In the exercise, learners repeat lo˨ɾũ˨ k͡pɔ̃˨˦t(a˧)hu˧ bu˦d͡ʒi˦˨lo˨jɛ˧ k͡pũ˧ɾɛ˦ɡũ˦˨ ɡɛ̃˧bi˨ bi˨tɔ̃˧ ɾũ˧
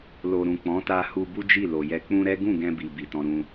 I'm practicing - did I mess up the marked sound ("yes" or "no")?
no